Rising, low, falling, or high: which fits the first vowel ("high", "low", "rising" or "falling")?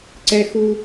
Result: high